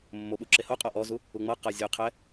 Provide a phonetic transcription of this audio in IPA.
mː o ɓ u ǁ e h o qʼ ɔ ʔ ɔ z u | u ŋ͡m ɤ q ɤ zʲ o qʰ ɛ

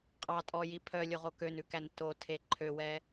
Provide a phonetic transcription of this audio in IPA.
qʼ ɑ tʼ ɔ j i pʰ œ lʲ o ʁ o k ø n ʉ k æ n t o tʰ e ǃʰ ø w ɛ

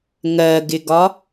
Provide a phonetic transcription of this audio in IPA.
ŋ ɜ ɡ ɪ ɡ ɒ

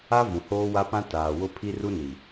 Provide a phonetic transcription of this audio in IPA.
a˦ v ũ˨ h oː˦ w a˦ p ã˦ t aː˨ w ʊ˦ pʰ i˦ r u˦ n i˨

